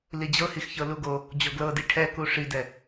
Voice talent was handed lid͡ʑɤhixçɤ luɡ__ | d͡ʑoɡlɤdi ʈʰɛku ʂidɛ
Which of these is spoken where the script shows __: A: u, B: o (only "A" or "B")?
B